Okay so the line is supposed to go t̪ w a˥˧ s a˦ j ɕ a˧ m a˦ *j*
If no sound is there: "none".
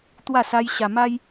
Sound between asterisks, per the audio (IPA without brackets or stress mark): j